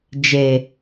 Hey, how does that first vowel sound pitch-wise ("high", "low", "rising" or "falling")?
low